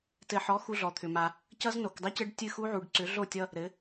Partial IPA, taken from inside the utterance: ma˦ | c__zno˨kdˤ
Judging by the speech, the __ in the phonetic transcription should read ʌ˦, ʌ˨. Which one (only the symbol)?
ʌ˦